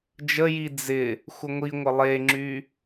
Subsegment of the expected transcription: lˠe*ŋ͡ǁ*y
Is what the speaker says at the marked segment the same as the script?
yes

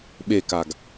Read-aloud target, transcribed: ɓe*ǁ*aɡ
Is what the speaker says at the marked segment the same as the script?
no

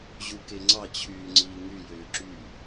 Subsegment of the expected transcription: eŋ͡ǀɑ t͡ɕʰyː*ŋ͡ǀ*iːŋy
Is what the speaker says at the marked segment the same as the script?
yes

